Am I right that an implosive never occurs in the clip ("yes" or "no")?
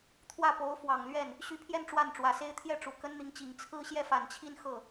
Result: yes